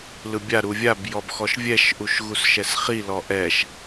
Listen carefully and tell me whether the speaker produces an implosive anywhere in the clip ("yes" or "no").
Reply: no